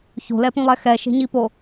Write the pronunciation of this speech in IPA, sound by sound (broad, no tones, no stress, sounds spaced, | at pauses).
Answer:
ç o̤ l ɛ p ũ lˠ ɛ x ɛ ʃ e̤ ɲ i p o